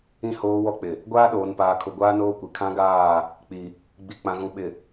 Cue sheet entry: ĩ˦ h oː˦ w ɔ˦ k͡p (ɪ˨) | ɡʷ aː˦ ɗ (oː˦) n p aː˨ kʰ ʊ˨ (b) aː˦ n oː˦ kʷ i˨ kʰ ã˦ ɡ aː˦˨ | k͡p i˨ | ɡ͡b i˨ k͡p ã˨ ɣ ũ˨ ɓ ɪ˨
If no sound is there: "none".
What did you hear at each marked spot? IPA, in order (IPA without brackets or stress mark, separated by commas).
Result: ɪ˨, oː˨, ɡʷ